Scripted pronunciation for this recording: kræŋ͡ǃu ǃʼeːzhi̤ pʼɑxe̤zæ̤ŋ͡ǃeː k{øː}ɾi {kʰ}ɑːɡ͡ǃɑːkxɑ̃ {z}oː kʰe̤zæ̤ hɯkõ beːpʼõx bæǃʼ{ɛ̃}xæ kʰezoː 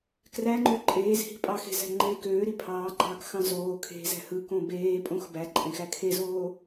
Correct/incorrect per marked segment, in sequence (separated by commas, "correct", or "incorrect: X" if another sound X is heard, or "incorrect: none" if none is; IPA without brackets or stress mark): correct, incorrect: pʰ, correct, incorrect: ẽ